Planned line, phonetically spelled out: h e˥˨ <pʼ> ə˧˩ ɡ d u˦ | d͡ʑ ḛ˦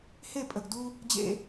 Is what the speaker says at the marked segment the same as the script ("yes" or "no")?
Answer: yes